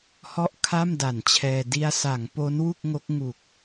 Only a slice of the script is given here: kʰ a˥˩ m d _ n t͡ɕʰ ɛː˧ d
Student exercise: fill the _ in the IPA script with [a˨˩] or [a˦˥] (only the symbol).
a˨˩